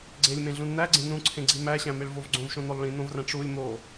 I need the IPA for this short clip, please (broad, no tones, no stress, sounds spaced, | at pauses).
ɡ͡ǀ e lʲ m ẽ ɮ ũ n n̪ æ ɡ͡ǀ ẽ n ũ ǀʰ ẽ ɡ͡ǀ i m æ ɕ æ̃ m e ɭ v o v ɡ͡ǀ õ v ʃ õ n̪ o lˠ ɭ ĩ n̪ õ v r æ̃ ʈ͡ʂ u lʲ m o